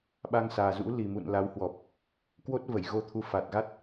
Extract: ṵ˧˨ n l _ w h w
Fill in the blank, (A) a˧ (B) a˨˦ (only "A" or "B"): B